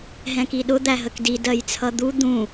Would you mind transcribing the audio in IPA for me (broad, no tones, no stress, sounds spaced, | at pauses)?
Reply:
ɦ ɛ̃ k i ɗ ʊ d̪ æ ɦ ə k d i d ɜ j t͡sʰ ʌ d̪ u d̪ ũ